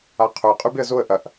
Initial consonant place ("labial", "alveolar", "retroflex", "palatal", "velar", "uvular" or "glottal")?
uvular